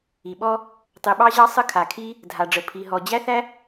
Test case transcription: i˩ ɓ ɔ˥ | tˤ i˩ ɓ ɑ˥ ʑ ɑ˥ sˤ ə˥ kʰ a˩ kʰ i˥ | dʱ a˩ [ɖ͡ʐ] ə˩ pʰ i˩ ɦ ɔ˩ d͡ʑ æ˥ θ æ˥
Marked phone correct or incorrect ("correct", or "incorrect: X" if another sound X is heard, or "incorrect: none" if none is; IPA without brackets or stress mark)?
correct